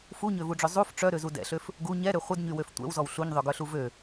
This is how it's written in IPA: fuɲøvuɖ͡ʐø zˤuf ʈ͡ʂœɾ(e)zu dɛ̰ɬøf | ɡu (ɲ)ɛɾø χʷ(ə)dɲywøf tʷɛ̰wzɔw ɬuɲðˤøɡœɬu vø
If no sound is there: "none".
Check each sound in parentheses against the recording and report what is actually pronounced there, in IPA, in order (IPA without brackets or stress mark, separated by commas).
ø, ɲ, ə